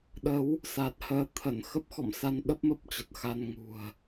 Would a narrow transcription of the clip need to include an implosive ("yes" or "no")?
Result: yes